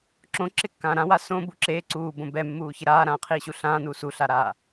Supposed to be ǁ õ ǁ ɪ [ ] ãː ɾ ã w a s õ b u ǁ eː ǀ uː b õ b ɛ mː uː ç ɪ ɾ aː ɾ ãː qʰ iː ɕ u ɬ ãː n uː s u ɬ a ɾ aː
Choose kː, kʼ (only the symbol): kː